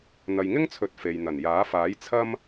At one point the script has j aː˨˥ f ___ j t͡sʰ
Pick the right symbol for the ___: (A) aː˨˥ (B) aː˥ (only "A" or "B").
A